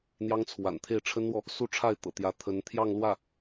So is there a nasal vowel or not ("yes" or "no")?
no